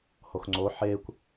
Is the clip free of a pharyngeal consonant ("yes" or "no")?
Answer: no